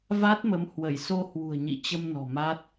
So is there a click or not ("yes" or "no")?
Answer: no